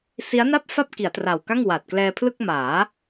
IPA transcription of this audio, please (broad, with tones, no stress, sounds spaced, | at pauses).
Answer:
s i˦˥ a̯ n a˥˩ p̚ f a˥˩ p̚ k i˩˦ a̯ t r a˨˩ w k a˥˩ ŋ w a˨˩ t̚ k l ɛː˧ pʰ l ɯ˥˩ k̚ m aː˩˦